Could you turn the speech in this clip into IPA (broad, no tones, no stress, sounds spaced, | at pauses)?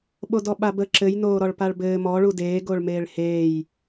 ɓ o d ɔ ɓ a b ə ǁ ɘ j n oː ɾ ɔ ɭ p a ɭ b ɘː m ɔ ɭ u d eː ɡ o ɭ m eː ɭ h eː j